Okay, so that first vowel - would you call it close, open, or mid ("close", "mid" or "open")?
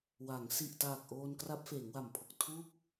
open